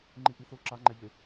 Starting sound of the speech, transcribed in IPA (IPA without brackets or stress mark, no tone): ŋ͡ǃ